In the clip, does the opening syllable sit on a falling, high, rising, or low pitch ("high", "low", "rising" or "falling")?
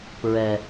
low